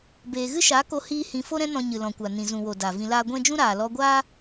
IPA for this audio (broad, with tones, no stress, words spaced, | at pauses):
beː˨ɣɨ˦ʃa˨˦ ko˧ hiː˦hĩ˧ fo˦ɾɛ̃˦ nɔ̃˧ɲɨ˨lɔ̃˨kʷa˨ nĩ˨zũ˨wo˨ da˨ vĩ˧laː˦ ɡʷɛ̃˦d͡ʒũ˦ ɾaː˨ lɔ˧ɡʷaː˦